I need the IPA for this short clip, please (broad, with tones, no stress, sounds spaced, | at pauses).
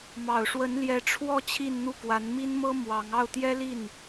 m ɑ˨˩ ʊ̯ ʂ w ə˧˥ n l j ɛ˧˥ ʈ͡ʂʰ w ɔ˥˧ t͡ɕʰ i˥˧ n n̪ u˥˩ k w a˧˥ n m i˥ n m ɤ˥ m w ɑ˧˥ ŋ ɑ˥˩ ʊ̯ t̪ j ɛ˥ l i˥˩ n